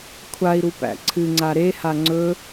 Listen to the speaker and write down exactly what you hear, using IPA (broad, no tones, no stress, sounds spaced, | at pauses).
kʷʰ a i̯ ɾ u p æ̰ ǀʰ ɨ ŋ͡ǀ a ɾ e h a ŋ͡ǀ ɵ